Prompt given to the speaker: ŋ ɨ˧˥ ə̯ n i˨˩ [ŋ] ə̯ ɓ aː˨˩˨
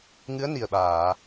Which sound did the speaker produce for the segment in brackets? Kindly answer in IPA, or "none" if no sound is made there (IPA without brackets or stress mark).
none